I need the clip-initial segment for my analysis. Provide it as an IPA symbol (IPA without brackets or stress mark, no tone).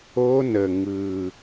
o